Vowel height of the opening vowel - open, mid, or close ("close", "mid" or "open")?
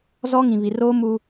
mid